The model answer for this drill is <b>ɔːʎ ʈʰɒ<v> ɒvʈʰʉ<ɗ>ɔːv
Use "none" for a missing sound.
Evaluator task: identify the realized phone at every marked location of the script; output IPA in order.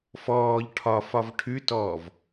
f, f, t

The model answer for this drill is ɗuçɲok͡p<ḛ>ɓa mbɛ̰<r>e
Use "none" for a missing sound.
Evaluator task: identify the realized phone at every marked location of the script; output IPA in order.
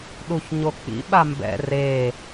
ḭ, r

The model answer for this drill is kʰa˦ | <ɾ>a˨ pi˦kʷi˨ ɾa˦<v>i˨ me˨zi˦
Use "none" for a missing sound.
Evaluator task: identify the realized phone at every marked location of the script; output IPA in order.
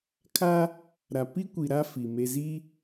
ɾ, f

